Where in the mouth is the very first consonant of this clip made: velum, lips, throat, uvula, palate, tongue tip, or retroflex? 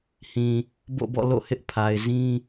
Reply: throat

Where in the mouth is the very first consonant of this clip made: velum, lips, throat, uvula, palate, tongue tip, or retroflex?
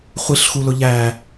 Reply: uvula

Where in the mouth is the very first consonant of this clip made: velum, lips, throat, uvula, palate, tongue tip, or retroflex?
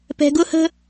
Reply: lips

